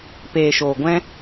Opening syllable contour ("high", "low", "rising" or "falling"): low